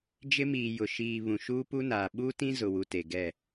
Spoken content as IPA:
d͡ʒɪ˦miː˨ jʊ˨ ʃiː˨ βũ˨ʃuː˦pu˦naː˨ ɓuː˦tĩ˦ zʊ˨wu˨ te˨ɡɛ˦˨

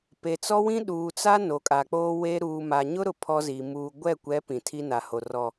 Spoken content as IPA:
pe˨t͡sɔ˦wĩ˦ ɗuː˨t͡sa˦ no˨kʼa˨k͡poː˦weː˦ ɾuː˨ma˨ɲʊ˦ɾʊ˨ pʰɔ˦ziː˨ muː˨ ɡʷɛ˦˨kʷɛ˨˦ pĩ˨tʰi˦na˨ho˨ rɔ˨

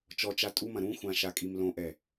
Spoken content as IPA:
t͡ʃɔt͡ʃa tʼumɐ̃ ɾũxʷã ʃakʼimlõʔɛ

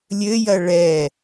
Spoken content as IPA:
lʲɘjɐ ɭɛ

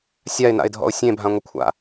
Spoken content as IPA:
sʲaɪ̯na̰ɪ̯dʱɔ̰ʊ̯ sʲẽbʱãŋʷəkʷʰa̰

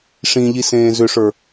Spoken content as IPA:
ʂĩʎisẽː zʏʂə˞

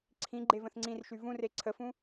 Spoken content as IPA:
ǀʰĩ ɡ͡ǃevə̃θŋ͡ǀĩrʃy vũre ǀʰəfũ

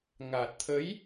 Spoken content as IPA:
ŋa˨˩t̚t̪ʰə˨˦j

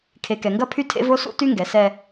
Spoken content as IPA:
kʰe˨kɛ˨ŋɡɐ˦pʰy˦ tʰḛ˦vo˦sṵ˦ ty˦ŋɡɛ˨ sɛ˦

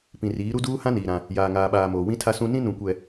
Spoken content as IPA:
pĩ˨riː˨˦ ɾu˦duː˦ hã˦niː˨ ɾã˦ | jaː˨ŋaː˨ɓaː˨moː˨ wĩ˦tʰa˦sũ˦ nĩ˦nũ˨kʷɛ˨

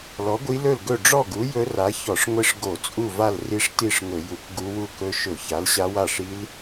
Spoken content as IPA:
lɔ˨˥ɡʷi˦˥lɵ˥˨lɡɵ˥˨ ɖ͡ʐɔ˥˨ɡu˨˥ jɵ˦˥ra˨˥ çɔ˧˩˧ʂ ŋʷi˦˥ʂ ɡo˧˩˧t͡sʼu˥˨va˥˨l ri˦˥ʂti˥˨ʂŋɵ˧˩˧ ju˧˩˧kɡu˦˥wu˥˨ kɵ˦˥ ʃɵ˧˩˧ça˨˥l ɕa˦˥wa˥˨ʂi˦˥l

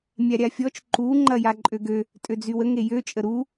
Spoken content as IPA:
mʲaɾʲafʲɔt͡ʃ ǃu ŋ͡ǃɐjaǃʼøɡø | tʼød͡zywə ŋejø t͡ʃʼəɾu

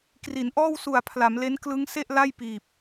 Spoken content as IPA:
kri˩˦nʔɔː˥˩w su˨˩a̯ pʰla˩˦mle˦˥n klɯ˦˥ŋse˥˩ʔla˥˩j piː˨˩p̚

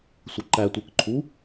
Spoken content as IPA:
sʷʌǃætʷə˞kǃʰu

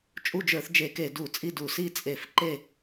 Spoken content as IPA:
t͡ʃʼu˦˨d͡ʒə˞˧˩˧θ d͡ʒe˧˩˧ke˧˩˧ du˧˩˧t͡sʼi˦˨du˧˩˧ si˦˨t͡sʼe˧˩˧f ǃe˦˨

